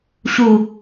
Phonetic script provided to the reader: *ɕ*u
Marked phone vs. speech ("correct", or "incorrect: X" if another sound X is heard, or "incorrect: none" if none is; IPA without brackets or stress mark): correct